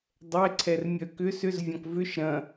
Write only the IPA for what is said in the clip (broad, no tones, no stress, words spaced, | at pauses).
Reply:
dˤɛǀʰɛr mʲœkʏ sʏz vʲɔ̃kvʏʃ ɾɐ̃